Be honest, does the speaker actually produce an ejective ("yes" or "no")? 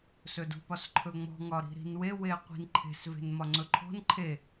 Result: no